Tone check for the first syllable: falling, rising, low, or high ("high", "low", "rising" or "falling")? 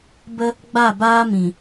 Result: high